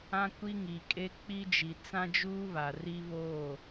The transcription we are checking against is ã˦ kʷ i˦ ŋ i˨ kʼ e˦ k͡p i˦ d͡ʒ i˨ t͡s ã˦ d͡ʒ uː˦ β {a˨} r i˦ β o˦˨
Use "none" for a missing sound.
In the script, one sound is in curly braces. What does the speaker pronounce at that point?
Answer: a˨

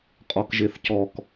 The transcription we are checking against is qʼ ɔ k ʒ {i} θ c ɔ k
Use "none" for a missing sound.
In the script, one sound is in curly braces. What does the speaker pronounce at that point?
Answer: e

